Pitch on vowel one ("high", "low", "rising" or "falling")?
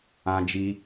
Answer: high